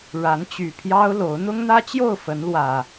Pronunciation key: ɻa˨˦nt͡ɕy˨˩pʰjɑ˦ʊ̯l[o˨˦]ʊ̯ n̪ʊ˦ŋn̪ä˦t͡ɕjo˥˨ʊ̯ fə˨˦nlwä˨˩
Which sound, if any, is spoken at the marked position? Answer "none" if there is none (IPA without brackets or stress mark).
o˨˦